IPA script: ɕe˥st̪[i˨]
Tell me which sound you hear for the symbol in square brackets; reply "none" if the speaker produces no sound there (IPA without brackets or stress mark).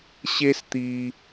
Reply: i˦